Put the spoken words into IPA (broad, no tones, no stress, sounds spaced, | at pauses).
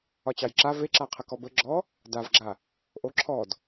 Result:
ɒ t͡ɕ ɑ j ǁ a v e ǁ a qʰ ə k ɔ b ə ɡ͡ǁ ɔ | d a v ɡ͡ǁ a | ʔ o ǁʰ ɔ d